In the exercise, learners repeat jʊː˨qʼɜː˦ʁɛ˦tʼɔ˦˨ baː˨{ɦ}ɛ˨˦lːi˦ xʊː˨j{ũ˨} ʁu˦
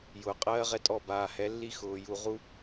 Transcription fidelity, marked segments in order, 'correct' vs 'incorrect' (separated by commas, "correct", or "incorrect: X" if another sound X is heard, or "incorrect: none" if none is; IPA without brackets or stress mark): incorrect: h, incorrect: u˨